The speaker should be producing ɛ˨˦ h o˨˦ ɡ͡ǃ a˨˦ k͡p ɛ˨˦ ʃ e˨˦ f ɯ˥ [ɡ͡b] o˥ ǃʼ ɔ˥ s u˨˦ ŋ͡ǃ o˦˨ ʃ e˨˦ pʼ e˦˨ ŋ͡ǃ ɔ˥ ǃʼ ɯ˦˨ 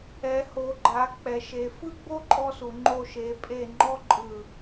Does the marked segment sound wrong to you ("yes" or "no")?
no